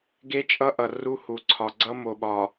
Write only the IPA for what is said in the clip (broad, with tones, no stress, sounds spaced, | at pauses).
ɡ e˦ t͡ʃʼ ʌ˦ ʔ ʌ˨ r u˦ h u˨ ǀʰ ɒ˨ ɡ͡ǀ ʌ˦ m o˨ ɓ ɒ˨